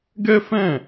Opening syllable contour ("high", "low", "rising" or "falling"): high